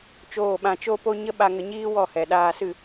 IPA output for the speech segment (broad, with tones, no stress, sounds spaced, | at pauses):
t͡ʃ oː˦˨ ɓ ã˧ t͡ʃ o˦ p o˦ ɲ ə˦ ɓ a˧ ŋ ə˧ ɲ iː˦ w ɔ˦˨ h ɛ˨ ɗ aː˧ s ɨ˦˨